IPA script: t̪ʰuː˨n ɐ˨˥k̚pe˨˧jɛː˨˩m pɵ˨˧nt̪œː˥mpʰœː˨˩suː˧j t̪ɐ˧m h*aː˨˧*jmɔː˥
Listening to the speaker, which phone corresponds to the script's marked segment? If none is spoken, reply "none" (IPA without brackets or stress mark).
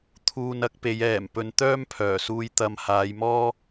aː˨˧